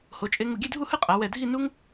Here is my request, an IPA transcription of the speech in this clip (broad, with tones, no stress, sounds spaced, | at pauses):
h o˩˧ t͡ʃʼ e˧ ŋ u˧˩ ɡʲ e˥˧ dʱ u˥˧ h ɯ˥˧ qʼ a˩˧ w ɛ˧˩ dʱ i˥˧ n u˥ ŋ